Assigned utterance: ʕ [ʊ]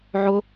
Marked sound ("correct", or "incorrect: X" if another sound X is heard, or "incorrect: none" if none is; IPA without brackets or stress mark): correct